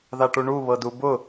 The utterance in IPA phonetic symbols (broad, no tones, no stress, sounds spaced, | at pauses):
ð a ʈ u ɳ u β ɤ d u b ʊ